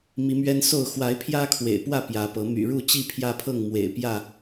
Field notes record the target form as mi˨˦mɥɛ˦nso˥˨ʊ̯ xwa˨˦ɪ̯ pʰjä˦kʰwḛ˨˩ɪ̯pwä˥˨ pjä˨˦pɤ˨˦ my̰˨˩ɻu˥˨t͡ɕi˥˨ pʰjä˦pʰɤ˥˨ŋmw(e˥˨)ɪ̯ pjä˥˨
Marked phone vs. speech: incorrect: ḛ˨˩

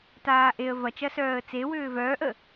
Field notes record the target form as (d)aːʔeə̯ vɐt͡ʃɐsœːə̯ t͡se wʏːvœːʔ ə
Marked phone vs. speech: incorrect: t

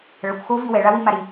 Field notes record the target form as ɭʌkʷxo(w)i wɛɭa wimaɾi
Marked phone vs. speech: incorrect: v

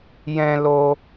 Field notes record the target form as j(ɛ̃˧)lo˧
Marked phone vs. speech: correct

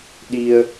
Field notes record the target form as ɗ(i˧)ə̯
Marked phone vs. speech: correct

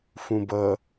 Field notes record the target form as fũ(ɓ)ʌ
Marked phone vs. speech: incorrect: b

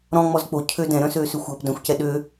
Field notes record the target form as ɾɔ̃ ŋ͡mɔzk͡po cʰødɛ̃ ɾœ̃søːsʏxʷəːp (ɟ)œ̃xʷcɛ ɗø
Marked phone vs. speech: incorrect: d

